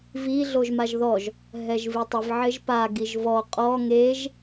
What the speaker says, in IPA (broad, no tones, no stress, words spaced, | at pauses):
vi ɮoʒmaʒðɔʒ | ɦɛʒvitˤɪv ʕɪʒpa ɡiʒvɔ qʼɔ ŋeʒ